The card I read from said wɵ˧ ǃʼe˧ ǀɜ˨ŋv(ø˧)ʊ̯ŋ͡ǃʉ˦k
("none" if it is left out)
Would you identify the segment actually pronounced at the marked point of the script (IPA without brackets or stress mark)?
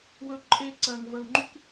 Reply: ə˧